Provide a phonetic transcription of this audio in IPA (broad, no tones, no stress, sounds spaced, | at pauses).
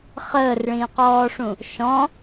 χ əː r ɭ ĩː q ɔː ʂ ũ | ʃ ɔ̃